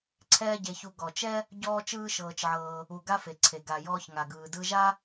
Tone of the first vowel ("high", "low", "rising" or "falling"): high